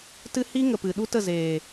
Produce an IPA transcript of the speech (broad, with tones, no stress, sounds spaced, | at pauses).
t ɨ˦ h i˦ ŋ ə˨ p ɨ˨ ɗ u˦ t ə˦˨ z eː˨